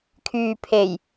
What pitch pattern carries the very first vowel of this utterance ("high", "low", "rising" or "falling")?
low